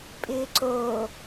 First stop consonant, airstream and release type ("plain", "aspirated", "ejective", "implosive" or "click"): ejective